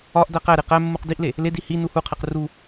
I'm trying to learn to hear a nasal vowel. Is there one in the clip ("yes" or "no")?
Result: no